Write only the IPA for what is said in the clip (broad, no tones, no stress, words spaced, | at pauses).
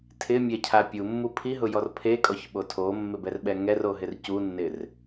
tʰɪmʲɛcʰa pʲumːu pʰiɦʊjɔr pʰekʼɔçɓo tʰomːɪbɛrɓɛ ŋɛroɦɪr cunːɪr